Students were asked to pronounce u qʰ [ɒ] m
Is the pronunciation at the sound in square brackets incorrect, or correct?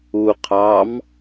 incorrect